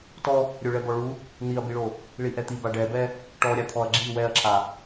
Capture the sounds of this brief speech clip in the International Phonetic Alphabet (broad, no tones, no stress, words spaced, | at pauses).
tɔ | ɾʲoɭɛbɔɭu | n̪iɐ̯biɭo | ɭiʔɛt̪iba ɖɛbɛ | ʈɔɾʲat̪ʰɔɐ̯ ɡ͡ǁi wɛɐ̯ǁʰa